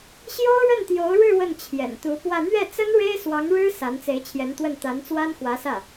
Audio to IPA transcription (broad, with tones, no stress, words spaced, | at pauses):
ɕjo˥ʊ̯ɻə˥˩nt̪jo˧˥ʊ̯ɻɻ̩˥˧ wə˥˩nt͡ɕʰjɛ̰˨˩n t̪u˧˥pwä˥˧ n̪ɥɛ˥˩t͡sə˥n ɻe˥ɪ̯swɑ˧˥ŋɻɻ̩˥ sa˧˥nt͡se˧˥ɪ̯t͡ɕʰjɛ˧˥nt̪wə˥˩n t̪a˧˥nt͡swa˥nxwä˧˥sä˥˩